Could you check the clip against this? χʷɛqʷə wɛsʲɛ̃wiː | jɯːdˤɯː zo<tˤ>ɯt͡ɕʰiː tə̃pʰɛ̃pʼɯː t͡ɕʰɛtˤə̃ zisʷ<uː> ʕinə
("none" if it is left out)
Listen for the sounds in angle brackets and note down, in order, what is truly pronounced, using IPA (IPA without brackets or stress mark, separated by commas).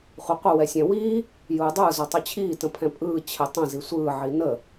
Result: tˤ, ɯː